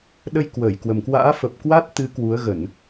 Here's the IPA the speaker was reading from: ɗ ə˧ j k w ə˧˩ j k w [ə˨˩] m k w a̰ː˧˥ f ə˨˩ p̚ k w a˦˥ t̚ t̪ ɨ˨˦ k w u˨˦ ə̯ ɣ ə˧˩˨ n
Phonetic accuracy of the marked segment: correct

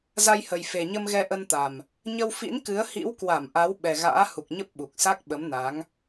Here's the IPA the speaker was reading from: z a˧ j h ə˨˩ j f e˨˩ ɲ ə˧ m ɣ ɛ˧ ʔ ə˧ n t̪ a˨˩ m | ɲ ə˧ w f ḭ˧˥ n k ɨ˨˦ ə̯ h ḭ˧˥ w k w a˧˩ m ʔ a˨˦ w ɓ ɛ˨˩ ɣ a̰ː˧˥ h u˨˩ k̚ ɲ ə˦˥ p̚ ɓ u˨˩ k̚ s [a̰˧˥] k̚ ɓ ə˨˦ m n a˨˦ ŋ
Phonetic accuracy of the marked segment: incorrect: a˦˥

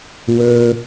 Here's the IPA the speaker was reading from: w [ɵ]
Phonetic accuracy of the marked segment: correct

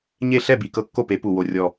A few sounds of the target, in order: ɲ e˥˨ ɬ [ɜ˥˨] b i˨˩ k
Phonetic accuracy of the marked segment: incorrect: ɛ˥˨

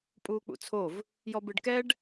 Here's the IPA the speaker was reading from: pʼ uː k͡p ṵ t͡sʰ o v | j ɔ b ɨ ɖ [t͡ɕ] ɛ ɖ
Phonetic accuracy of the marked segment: incorrect: k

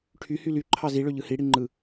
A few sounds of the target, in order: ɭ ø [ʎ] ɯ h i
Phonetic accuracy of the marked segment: correct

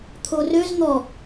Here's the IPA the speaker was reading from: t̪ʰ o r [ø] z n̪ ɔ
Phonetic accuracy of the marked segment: correct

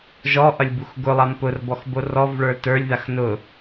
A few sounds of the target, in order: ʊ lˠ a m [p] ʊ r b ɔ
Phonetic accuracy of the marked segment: correct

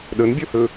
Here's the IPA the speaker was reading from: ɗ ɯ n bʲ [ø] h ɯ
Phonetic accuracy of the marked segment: incorrect: u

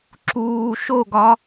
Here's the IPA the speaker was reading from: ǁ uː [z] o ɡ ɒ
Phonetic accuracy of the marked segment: incorrect: ʃ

